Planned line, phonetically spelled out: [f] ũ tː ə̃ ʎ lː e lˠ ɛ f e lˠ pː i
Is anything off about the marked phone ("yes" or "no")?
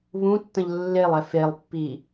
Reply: yes